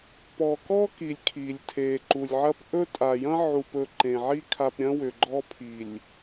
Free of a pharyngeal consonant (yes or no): no